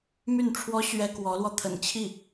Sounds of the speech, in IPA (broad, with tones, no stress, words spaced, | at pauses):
my˥˩nʈ͡ʂʰwɔ˥ ɕɥɛ˥kwɔ˧˥lwɔ˧ t̪ʰə̰˨˩nt͡ɕʰi˥˩